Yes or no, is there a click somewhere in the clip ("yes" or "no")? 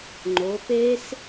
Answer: yes